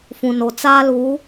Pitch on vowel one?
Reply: low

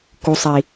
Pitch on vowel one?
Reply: low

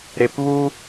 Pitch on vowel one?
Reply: low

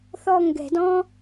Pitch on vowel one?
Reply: falling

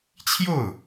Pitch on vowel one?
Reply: falling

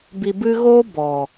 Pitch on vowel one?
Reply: low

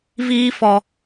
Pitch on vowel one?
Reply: high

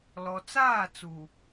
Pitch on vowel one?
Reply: low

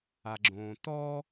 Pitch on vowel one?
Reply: low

